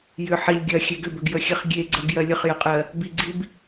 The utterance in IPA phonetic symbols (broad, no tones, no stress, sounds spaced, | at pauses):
j ʏ ħ i lʲ ɡʲ ɜ xʲ e ɡ ʏ b ʏ ɡ j ə xʲ e χ ɡʲ e ɡ͡ǀ ɜ ɡ j ɜ lʲ ə χ j ə qʼ ɜ | b i ɡ͡ǀ i b